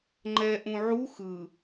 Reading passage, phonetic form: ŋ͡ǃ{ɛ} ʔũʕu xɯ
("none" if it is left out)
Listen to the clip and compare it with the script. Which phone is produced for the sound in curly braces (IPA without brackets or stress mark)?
ɛ